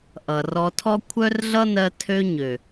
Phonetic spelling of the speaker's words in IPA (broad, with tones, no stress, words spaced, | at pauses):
ʔʌ˨rɔ˧tʰɔ˦ kʷʰœ˦rɮʌ˦nɜ˧ tʰø˧ ɲø˨